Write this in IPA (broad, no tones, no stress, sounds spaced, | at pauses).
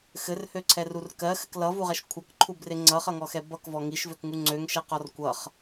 x ɘ r h ø ǀʰ ɛ r u r k ɜ x ɘ k l ʌ v u ʁ ɛ ʃ kʷʰ ʌ k ǃʰ u b r e ŋ͡ǀ ʌ χ ʌ ŋ ɔ x ɛ b ʌ k v ɔ ŋ i ʃ v ø k ŋ u ŋ͡ǀ ø ŋ ʃ ɛ q ɔ r kʷ ʌ χ